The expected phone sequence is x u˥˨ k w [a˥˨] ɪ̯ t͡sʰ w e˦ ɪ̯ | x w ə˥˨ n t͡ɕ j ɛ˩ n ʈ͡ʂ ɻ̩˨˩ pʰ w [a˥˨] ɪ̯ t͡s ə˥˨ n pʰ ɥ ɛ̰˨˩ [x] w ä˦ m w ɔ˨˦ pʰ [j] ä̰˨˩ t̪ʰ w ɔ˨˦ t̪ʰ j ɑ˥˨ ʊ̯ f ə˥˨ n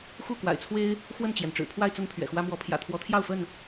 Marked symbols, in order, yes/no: no, yes, yes, yes

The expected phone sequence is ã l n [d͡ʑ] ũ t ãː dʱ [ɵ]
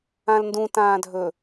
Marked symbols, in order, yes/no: no, yes

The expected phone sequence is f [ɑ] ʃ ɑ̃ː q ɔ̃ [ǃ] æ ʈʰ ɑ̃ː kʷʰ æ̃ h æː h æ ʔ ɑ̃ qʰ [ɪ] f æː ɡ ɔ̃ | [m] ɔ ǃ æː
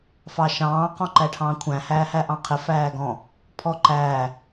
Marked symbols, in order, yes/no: yes, yes, yes, no

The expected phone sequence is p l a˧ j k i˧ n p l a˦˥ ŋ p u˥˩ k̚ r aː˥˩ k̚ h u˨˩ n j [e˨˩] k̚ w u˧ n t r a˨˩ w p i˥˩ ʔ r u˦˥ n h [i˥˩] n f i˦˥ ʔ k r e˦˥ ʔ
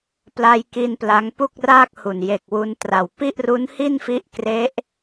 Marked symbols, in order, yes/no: yes, yes

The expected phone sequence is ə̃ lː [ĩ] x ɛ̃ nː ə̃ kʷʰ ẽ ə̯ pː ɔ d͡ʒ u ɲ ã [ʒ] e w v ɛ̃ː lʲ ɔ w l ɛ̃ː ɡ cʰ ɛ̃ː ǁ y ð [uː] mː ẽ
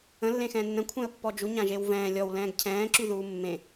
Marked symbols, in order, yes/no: no, yes, yes

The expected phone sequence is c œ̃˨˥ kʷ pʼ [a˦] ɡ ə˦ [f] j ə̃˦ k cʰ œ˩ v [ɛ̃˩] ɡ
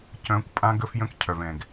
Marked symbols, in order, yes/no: no, yes, yes

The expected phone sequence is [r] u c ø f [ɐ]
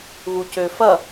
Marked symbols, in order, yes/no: no, yes

